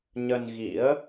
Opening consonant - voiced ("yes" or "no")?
yes